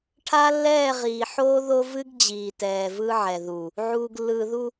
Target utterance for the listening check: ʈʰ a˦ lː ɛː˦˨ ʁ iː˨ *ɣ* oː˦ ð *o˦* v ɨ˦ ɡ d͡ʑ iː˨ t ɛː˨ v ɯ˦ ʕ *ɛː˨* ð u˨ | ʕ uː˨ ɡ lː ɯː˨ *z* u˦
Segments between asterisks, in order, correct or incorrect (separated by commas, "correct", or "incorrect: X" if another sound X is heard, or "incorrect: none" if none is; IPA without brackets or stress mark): incorrect: ħ, correct, incorrect: ɛ˨, incorrect: ð